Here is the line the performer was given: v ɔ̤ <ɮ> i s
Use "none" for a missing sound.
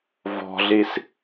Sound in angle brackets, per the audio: ɮ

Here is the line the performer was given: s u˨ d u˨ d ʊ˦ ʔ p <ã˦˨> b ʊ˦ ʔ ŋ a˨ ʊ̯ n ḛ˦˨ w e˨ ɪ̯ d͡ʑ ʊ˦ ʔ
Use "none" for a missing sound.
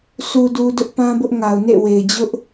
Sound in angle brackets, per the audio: ã˦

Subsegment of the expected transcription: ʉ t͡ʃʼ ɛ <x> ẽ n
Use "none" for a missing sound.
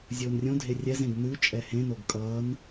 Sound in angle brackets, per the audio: h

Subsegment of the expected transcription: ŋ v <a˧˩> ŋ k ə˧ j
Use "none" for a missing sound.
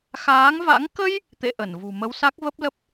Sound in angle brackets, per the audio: a̰˧˥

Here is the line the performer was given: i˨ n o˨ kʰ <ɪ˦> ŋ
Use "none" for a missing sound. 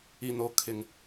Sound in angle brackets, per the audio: ɪ˨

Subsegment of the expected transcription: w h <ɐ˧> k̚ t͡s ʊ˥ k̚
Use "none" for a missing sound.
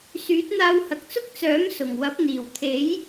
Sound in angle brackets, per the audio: ɐ˨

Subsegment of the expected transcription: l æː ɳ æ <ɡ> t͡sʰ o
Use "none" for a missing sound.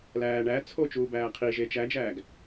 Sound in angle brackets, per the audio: none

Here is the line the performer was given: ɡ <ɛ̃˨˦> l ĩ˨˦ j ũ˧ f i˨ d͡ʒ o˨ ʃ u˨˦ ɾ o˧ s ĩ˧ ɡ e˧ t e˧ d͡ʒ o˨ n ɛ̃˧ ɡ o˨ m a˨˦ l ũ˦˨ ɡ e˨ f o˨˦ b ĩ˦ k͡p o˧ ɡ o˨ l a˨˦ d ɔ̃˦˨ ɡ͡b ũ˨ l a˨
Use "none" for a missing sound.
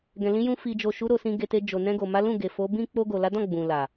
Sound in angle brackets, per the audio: ɛ̃˨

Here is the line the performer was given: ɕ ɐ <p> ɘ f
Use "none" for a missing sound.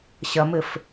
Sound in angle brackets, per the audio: m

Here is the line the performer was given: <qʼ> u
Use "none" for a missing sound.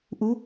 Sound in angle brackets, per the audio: ʔ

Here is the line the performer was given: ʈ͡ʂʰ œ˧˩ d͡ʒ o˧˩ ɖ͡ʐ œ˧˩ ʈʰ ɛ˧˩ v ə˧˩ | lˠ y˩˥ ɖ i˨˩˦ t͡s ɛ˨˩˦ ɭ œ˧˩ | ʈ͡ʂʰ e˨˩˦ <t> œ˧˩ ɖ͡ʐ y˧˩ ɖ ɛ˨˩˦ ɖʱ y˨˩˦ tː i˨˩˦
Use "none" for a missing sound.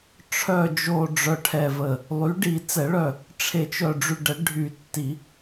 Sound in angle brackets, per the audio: t͡ʃ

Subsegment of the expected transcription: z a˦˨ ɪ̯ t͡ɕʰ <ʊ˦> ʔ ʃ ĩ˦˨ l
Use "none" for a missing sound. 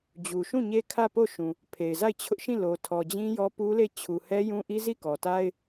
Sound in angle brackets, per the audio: ʊ˦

